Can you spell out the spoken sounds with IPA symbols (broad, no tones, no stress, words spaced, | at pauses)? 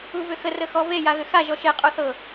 uvʏxə rəxɔve jaɣʏxa ʒɔʃe qʼuθɤ